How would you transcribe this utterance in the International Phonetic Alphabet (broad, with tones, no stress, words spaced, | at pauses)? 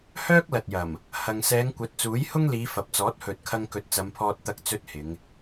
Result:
hœː˥k̚lɐ˨t̚jɐ˨˩m | hɐ˧ŋ sɛː˨˧ŋkʷɐ˨˥t̚t͡suː˨˥jhʊ˥ŋ liː˨˧fɐ˨p̚t͡sɔː˨˥t̚ hɵ˨t̚kʰɐ˧ŋ kɵ˨˥t̚t͡sɐ˨˧mpʰɔː˧t̚ t̪ɐ˥k̚t͡sɵ˥t̚hɪ˨˧ŋ